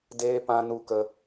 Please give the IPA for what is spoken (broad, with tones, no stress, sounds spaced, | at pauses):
d eː˦ p ã˧ n u˧ k ə˧